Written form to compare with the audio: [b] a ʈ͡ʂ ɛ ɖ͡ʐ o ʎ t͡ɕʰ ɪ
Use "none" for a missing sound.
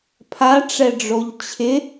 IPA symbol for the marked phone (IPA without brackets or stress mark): pʰ